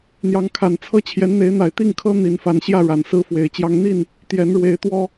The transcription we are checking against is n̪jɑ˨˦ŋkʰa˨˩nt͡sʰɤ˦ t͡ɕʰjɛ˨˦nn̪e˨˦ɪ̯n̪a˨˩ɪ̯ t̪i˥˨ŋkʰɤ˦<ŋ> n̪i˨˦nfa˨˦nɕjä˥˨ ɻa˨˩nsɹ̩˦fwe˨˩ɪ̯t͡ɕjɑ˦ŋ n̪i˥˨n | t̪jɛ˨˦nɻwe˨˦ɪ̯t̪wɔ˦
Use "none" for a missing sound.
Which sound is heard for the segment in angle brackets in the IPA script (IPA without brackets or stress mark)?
none